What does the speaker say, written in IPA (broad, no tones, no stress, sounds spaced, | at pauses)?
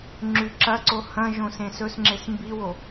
ŋ͡ǁ ʉ ǁ ɐ ǀ o h ɐ̃ ʒ õ s ẽ s ɵ s ŋ͡ǁ e s m b i w o